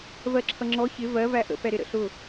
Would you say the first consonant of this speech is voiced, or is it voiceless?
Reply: voiced